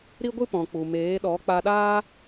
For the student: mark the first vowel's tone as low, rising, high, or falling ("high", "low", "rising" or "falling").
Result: high